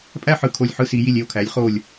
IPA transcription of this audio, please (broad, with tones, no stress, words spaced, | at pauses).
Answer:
pʼæ˥˨ħɯ˧˩ kʰo˧˩lʲħɯ˦si˩˧ ji˧˩lʲe˥˨o̯kʰæ˩˧lʲχo˧˩lʲ